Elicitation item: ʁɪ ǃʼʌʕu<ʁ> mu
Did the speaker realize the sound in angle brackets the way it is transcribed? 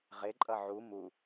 no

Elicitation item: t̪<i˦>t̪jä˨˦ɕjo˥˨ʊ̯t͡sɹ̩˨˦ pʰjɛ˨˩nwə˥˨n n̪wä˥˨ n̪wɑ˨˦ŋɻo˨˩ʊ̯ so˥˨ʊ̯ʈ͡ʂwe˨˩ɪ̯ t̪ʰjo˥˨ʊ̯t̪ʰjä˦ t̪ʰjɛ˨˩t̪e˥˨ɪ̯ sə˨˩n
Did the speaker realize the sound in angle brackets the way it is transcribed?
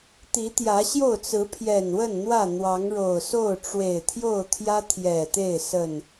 no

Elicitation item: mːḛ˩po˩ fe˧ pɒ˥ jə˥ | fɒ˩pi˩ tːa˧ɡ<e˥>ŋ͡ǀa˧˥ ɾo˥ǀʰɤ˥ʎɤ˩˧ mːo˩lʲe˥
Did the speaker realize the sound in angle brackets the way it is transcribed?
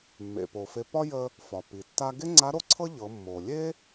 yes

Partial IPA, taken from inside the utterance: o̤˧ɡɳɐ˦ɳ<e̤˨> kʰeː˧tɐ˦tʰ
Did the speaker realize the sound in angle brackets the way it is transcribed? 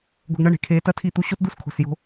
yes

